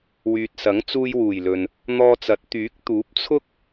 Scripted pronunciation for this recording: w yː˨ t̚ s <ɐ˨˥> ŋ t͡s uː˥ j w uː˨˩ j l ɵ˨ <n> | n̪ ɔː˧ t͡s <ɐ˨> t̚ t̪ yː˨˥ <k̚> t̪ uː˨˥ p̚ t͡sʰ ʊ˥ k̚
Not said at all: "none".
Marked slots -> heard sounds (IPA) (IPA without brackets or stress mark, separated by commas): ɐ˨˥, n, ɐ˨˥, k̚